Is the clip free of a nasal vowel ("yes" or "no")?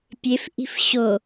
yes